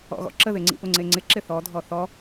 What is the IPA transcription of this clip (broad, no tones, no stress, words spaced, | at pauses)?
ɔ̰ɣɔ̰ǁəðɪ ŋ͡ǀḭpʊŋ͡ǀeŋ͡ǀɪ ǁɪθɔdʱɔ θɔ